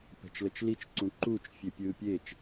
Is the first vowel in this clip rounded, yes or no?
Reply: no